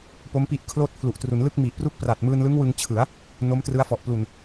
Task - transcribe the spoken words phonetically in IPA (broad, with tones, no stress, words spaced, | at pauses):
po˦˥mpi˦˥ʔ kʰloː˦˥t̚pʰlu˨˩ʔtru˩˦n lɯ˥˩k̚mi˨˩ʔpru˥˩k̚ pra˨˩t̚mɯː˧nlɯ˦˥ŋ wɯ˧ŋt͡ɕʰɯ˩˦a̯ | no˦˥mtrɯ˦˥a̯fɔ˨˩ʔ plu˨˩n